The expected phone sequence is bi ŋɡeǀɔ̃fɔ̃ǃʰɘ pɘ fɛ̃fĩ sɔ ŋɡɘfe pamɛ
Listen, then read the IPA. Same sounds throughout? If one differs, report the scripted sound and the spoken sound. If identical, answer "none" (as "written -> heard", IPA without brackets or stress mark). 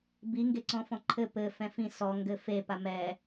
none